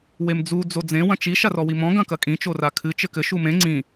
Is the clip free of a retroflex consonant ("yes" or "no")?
yes